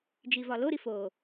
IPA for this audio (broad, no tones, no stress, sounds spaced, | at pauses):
d͡ʒ i v ɒ l o ɾ i f o